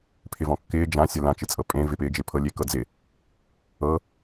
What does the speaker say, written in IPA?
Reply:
pʰɪvɔ̃kːɪː d͡ʒã sʲəlã t͡ʃɪt͡sʼɤpʼẽ vɪpɪːd͡ʒɪ pʰɤlʲekɤd͡zɪ | ɤ

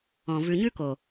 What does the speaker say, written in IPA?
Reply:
ɔ̃˨ vʉ˨ɲʉ˦ko˨

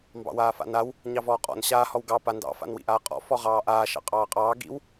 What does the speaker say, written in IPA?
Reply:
mbɑ̰waːfa̰naw | ɲɑvɔːqʼɔ̰n ɕaː hɔwɡɑ pandɑ̰ fa̰nwḭʔaːqʼɔ̰ fɔʁɑːʔaː ʃɑ̰qʼɑːqʼɑː ɡḭw

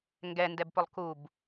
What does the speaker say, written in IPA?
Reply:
ŋɡɛndɛbpʊlˠ kub

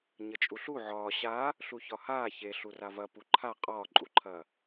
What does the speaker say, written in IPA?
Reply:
ɲət͡ʃʼuɬu ʕɒː ɕa | ɬuçɒhaː çeɬu ravɐ puǃʰa qʼɒːǃʼuǃʰɐː

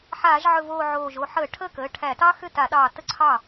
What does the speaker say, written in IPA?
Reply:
ħaː˧˩˧ʒʕɵ˧˩voː˧˩ ʕoː˧˩ʒ o˧˩ħəː˧˩˧ʈʰəː˥˩kəː˩˧˩ ʈʰæ˧˩˧tɑ˥ xʏ˥˩ta˧˩˧ɗɑː˧˩ tə˥ǀʰɑ˥˩

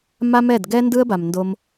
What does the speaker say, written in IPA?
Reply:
ma˦mɛ˦˨d ɡɛ˦ndɯ˦ə̯ba˨m ndo˧m

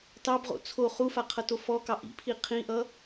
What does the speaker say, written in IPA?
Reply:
tɑbʁo̰ t͡sʰo χufa qʰʌtofɔkɑ ʔḭpʰi qʰĩʔʌ

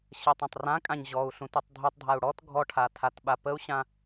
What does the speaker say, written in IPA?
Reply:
ɕətˤ ɔ̃tˤrãkʼãɲ ʑɔu̯ ɬũtytˤdʱutˤdʱau̯ ɽɔt ɡʱɔʈʰa tʰatɓapəu̯ɕã

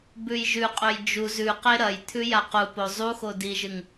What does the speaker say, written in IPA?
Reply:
bʉjʒʉqʼɵj d͡ʒu zʉqe ɾɐj t̪ʰʉjaqupo zˤuxo diʒɨŋ

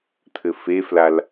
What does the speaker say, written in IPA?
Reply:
t̪ʰɘfeflal

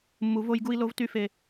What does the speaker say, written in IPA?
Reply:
mːu˨vo˦jɡu˦i̯lo˦v ty˦fe˦

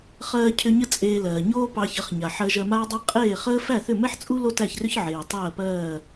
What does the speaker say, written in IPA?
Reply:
χɜː˧cʰʏ˧ ɲə˥t͡sʼeː˧lɜː˩ ɲoː˥pɑ˧çə˩˥χɲa˩ ħɜ˧ʒɜ˧maː˥dˤæ˥ qʼeː˥˩χəː˥ fæ˥˩θʏ˥˩mɛ˥ħt͡sʼu˥ lo˥tæ˥˩çrʏ˥ç ʕeː˩tˤɜː˥˩pɜː˥˩

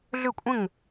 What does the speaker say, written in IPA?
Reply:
ɮʏ˥˨kʷʼə̃˥˨ŋ

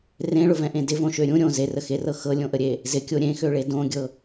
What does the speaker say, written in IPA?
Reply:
rẽɭʊvɛ̃ʔẽ dɪvõʃø ɾʲũ ɾʲõ zerəxerɤ xɤlʲõʔəɾʲe | zɪkʲo ɾʲẽxøɭe dõɡʲɤ

